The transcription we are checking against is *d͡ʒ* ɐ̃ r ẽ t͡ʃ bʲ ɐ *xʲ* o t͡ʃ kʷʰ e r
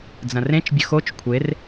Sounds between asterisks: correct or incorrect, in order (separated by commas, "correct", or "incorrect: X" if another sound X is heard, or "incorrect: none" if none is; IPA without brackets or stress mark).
incorrect: d͡z, incorrect: x